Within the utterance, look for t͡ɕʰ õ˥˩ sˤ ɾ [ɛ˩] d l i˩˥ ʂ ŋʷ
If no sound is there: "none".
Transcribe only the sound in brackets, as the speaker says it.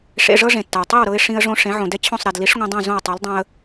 ɛ˩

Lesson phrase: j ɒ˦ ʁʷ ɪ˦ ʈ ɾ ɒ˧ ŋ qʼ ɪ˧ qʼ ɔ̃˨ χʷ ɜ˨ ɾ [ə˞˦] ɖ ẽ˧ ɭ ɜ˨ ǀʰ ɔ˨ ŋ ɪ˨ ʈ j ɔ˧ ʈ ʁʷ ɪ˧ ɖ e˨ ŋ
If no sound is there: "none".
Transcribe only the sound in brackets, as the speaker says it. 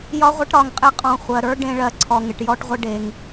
ə˞˦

